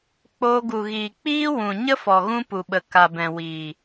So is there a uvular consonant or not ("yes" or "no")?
no